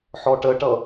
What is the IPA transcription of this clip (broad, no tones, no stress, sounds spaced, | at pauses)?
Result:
ħ ɔ ʈ ə ʈ ʌ